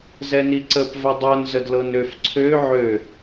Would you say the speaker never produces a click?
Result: no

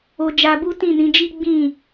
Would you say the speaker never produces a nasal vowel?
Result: no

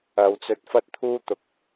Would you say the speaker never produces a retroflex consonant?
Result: yes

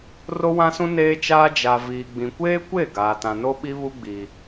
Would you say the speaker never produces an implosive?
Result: no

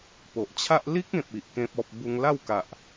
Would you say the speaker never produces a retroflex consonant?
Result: yes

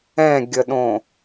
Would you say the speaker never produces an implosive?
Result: no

